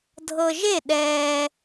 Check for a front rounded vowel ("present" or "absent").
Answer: absent